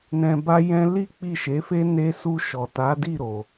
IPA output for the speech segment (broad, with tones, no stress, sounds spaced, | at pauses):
n ɛ̃˧ b a˦ j ɛ̃˦ l i˦ k͡p i˦˨ ʃ e˨˦ f e˦ n e˦ s u˧ ʃ ɔ˨ t a˨˦ d i˦˨ ɾ o˨